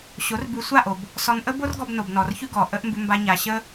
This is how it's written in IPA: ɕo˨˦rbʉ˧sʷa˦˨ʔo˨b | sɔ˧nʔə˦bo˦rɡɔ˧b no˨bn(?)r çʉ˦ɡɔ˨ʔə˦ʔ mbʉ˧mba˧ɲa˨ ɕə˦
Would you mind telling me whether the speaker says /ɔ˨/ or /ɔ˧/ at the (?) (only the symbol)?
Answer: ɔ˨